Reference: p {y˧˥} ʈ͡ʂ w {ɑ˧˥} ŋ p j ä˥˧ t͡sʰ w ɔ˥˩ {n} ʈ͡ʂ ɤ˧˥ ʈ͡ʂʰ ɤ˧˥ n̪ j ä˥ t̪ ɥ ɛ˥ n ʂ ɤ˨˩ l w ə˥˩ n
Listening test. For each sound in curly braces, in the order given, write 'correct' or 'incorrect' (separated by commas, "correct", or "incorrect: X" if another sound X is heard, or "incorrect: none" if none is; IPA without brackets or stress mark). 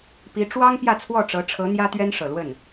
incorrect: i˧˥, incorrect: ɑ˥, incorrect: none